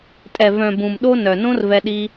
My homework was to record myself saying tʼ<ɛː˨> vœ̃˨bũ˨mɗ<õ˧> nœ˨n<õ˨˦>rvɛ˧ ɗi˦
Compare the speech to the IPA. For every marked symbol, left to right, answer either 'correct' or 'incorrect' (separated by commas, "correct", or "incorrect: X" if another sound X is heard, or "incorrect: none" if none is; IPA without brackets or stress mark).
incorrect: ɛ˨, incorrect: o˧, incorrect: õ˦